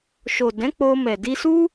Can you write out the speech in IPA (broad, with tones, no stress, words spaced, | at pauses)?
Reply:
ʃo˨dɛ̃˨˦ k͡po˧mɛ˨ di˧su˦